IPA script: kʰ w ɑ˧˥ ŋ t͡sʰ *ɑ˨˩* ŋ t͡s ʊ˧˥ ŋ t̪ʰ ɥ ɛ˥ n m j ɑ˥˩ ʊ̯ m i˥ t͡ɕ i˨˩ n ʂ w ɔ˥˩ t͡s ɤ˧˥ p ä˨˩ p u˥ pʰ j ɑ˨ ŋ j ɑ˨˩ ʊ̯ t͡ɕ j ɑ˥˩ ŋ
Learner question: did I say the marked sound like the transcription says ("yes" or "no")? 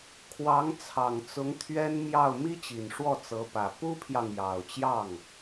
yes